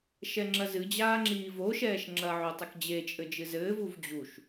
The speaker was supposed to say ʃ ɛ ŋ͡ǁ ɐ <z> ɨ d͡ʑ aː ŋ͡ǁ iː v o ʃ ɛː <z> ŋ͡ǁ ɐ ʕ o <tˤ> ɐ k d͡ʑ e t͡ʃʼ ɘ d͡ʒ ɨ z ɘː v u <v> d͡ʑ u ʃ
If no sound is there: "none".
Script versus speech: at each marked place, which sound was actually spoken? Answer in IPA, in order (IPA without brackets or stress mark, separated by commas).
z, ʃ, tˤ, v